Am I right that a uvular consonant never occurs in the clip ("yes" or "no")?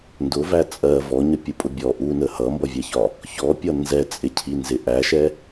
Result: yes